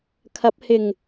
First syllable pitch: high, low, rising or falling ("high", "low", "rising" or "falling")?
rising